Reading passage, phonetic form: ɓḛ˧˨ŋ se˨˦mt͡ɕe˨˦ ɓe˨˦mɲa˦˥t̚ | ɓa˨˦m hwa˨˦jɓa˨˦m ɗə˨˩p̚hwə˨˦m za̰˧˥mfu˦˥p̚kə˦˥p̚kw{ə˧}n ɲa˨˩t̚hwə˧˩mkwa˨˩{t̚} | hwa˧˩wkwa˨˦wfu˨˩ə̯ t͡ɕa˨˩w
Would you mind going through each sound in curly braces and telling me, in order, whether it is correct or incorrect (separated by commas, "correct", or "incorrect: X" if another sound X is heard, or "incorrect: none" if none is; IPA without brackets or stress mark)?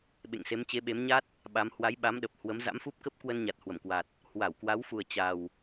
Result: correct, correct